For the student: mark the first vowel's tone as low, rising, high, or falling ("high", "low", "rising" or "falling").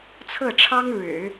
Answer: falling